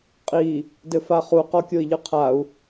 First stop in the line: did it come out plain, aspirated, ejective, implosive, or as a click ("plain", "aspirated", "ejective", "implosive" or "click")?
ejective